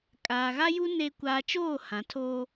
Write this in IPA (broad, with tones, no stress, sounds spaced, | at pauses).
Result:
kʼ aː˨ ɣ a˦ j u˦ n e˦ kʷ aː˦ t͡ʃ oː˦˨ h ã˨˦ tʰ oː˦